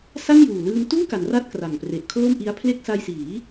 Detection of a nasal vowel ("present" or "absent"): absent